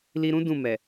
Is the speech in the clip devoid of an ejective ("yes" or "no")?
yes